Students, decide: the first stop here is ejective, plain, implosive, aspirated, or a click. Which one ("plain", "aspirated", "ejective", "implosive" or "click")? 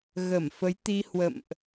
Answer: plain